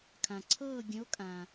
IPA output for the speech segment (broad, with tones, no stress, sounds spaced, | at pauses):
kʰ ã˨ ǀʰ ɤː˥˧ ɡʲ ə̃˧˥ o̯ kʼ ã˨